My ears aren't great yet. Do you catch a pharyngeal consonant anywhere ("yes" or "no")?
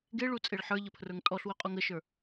yes